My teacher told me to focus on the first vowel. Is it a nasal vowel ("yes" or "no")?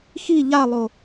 no